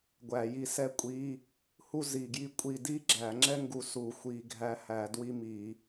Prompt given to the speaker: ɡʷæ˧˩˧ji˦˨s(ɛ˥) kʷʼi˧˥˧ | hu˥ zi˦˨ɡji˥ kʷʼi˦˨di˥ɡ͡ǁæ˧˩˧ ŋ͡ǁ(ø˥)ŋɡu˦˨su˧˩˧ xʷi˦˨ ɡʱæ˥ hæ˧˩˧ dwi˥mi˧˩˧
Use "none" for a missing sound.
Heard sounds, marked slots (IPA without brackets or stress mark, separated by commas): ɛ˥, ɛ˥